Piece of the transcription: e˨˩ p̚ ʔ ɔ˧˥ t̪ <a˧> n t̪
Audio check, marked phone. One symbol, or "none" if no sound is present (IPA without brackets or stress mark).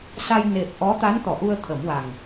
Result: a˧˥